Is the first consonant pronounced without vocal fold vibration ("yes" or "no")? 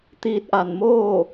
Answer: yes